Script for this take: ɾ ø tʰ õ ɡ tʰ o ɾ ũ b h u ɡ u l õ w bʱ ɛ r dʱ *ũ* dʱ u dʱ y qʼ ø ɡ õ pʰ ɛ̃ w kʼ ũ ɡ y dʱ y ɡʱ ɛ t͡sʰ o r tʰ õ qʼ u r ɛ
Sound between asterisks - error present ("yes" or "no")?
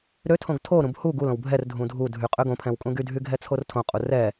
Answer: no